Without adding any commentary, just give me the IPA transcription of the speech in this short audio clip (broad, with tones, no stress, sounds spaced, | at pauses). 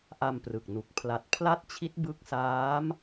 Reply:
ʔ a˧ m p r ɯ˨˩ k̚ n u˨˩ k̚ pʰ l a˨˩ t̚ pʰ l a˥˩ t̚ t͡ɕʰ i˦˥ t̚ b ɯ˦˥ k̚ s aː˦˥ m